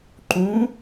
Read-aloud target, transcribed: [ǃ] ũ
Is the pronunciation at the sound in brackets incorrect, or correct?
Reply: correct